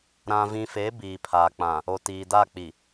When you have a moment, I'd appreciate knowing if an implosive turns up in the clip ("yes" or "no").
no